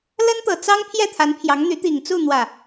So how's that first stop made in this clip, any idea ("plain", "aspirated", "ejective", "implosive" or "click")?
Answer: plain